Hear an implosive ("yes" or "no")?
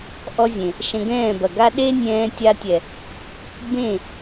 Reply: yes